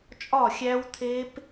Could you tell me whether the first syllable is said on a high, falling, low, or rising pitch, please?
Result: falling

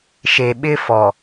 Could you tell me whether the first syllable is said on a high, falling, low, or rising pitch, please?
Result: low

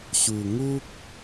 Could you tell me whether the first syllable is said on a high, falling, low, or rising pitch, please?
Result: low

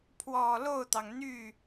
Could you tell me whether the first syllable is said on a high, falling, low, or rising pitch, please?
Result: low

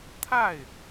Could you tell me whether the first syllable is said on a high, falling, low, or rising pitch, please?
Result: falling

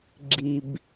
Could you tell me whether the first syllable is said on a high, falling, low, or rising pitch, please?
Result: low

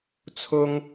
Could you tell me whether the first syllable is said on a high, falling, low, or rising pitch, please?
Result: high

